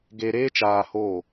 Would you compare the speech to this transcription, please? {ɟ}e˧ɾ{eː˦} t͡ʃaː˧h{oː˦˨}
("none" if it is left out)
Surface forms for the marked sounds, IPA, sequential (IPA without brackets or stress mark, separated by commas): ɡ, eː˦, oː˦˨